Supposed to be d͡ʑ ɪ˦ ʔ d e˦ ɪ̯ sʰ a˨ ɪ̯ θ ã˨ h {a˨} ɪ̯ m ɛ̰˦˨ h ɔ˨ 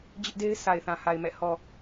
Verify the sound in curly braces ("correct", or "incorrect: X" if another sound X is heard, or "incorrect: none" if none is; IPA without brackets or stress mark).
correct